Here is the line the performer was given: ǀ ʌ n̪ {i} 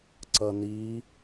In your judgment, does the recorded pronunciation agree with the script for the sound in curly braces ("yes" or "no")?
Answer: yes